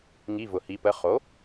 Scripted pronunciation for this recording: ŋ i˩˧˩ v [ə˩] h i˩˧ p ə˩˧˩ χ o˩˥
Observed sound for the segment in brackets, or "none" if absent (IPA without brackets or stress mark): ʊ˩